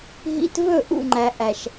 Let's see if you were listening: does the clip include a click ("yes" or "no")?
yes